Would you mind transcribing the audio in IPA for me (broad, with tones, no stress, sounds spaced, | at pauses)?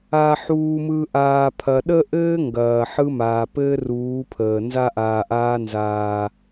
aː˨ ħ uː˨ m ɯ˨ ʔ aː˨ pʰ ɐ˨ ɗ ə˦ ʔ ɘː˦ ŋ ɡ ɐː˨ ħ ɯ˦ m aː˨ p ɘː˦ r uː˨˦ pʰ əː˨ n z a˦ ʔ aː˨ ʔ aː˦ n z aː˦